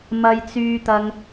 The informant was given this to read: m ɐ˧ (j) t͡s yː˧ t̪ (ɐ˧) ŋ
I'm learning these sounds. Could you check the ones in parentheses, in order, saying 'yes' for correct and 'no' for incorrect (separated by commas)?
yes, yes